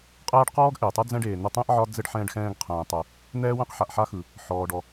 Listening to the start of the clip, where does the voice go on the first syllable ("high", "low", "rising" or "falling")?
high